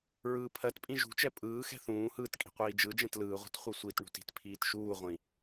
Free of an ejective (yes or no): no